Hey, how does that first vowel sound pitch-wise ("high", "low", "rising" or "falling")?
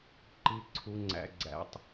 low